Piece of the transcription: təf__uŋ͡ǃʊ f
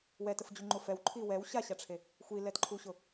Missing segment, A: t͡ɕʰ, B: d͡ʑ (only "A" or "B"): B